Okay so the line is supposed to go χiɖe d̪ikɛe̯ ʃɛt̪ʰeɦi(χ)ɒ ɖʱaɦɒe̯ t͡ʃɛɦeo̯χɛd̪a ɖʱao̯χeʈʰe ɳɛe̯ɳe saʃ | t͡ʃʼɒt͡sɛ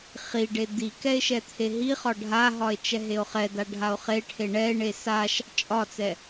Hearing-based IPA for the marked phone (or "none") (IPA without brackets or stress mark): χ